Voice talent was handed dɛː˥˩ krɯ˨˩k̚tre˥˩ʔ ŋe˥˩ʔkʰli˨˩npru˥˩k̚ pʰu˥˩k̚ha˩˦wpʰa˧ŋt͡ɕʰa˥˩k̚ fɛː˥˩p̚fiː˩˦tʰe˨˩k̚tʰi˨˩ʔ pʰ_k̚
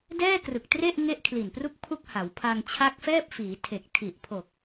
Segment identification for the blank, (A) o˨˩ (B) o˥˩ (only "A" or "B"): A